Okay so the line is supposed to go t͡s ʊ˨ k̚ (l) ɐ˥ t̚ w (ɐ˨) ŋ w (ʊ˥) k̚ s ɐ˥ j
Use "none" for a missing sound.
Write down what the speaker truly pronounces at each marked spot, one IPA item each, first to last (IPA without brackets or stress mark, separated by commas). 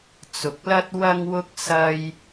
l, ɐ˥, ʊ˥